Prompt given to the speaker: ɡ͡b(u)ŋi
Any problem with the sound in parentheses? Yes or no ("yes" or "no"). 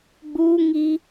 no